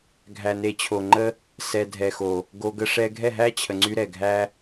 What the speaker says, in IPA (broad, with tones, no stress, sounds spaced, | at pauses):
ɡʱ æ˨ n e˨ t͡ɕʰ o˨ ŋ͡ǃ ə˦ | s ɛ˨ dʱ ɛ˨ x o˨ | ɡ o˧ ɡ ə˦ ʂ ɛ˦ ɡʱ ɛ˦˨ ɦ æ˦ t͡ɕʰ ə˨ ŋ͡ǀ y˧ ɾ ɛ˨ ɡʱ æ˦